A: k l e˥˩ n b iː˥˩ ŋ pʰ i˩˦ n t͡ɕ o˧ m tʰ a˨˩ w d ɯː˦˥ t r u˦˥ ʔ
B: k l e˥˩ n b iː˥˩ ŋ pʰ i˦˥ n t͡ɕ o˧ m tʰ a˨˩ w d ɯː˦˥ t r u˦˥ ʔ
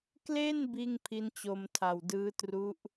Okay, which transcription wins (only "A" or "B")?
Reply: B